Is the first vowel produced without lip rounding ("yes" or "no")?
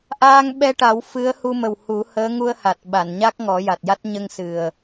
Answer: yes